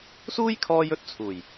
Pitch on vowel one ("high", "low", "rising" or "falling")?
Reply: high